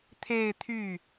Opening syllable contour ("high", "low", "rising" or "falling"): falling